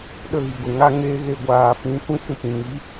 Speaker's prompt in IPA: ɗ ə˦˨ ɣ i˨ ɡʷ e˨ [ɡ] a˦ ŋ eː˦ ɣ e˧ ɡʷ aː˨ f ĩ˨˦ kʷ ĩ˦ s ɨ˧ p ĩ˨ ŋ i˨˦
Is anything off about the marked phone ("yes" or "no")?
yes